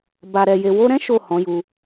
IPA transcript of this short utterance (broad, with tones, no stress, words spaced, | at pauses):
ba˨ɾɛ˨ je˨wo˧ɾɛ̃˦ ʃo˦˨hɔ̃˨˦ju˧